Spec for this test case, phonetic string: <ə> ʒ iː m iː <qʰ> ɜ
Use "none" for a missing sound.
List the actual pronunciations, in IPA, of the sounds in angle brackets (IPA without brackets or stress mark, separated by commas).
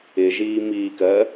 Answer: ɪ, k